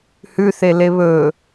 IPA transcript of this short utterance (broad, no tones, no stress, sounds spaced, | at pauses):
h ʉ θ e l e β ɵ